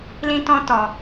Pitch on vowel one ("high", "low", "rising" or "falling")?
high